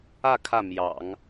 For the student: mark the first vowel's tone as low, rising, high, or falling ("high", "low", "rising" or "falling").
falling